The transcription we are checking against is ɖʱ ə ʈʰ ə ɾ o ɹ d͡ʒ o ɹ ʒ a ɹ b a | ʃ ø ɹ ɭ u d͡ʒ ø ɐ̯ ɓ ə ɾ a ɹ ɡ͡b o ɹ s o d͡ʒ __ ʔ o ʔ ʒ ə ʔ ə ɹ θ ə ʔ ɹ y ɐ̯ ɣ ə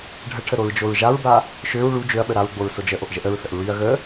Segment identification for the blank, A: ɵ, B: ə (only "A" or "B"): B